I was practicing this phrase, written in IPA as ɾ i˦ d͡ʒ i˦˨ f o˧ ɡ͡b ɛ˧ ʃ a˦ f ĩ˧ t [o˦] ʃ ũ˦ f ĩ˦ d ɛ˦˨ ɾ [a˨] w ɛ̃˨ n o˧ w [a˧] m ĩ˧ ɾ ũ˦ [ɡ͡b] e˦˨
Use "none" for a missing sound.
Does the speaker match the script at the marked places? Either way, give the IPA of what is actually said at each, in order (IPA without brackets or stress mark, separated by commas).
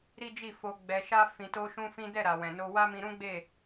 o˦, a˨, a˦, ɡ͡b